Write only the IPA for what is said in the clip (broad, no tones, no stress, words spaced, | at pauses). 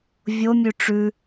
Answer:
vʲomʲʉ ʈ͡ʂʉ